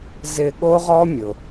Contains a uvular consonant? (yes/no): yes